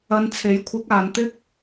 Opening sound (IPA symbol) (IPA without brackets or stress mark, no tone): ɐ